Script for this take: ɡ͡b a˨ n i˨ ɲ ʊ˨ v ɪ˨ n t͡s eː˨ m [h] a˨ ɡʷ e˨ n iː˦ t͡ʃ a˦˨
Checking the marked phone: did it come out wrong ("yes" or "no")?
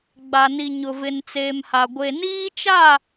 no